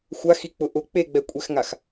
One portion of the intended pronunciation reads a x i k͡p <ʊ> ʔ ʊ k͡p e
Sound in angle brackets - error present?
no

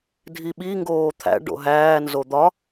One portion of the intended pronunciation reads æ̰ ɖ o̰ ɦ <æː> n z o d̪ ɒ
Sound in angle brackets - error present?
no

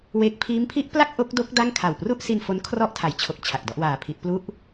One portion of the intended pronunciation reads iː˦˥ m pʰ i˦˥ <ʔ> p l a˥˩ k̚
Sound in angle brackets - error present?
no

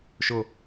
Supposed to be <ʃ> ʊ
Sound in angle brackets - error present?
no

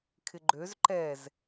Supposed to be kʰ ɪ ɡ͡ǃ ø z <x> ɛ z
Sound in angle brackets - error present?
yes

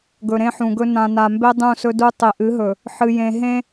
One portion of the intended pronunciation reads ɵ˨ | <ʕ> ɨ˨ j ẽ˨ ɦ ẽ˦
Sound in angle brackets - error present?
yes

